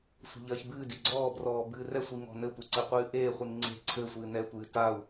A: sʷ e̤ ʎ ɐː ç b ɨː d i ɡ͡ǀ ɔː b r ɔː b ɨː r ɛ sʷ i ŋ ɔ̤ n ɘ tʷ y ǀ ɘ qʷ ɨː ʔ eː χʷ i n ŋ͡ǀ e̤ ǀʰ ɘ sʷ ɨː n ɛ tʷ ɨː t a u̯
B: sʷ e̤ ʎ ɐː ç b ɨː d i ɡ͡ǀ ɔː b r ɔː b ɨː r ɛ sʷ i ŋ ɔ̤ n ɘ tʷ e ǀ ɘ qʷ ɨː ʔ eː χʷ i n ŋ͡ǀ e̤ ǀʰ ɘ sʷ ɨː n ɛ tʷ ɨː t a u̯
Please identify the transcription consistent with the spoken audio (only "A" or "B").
B